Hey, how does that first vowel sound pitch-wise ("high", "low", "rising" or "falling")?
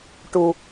low